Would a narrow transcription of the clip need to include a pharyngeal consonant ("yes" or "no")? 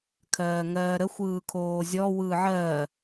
yes